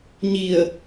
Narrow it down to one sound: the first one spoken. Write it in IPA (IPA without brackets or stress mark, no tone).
ɲ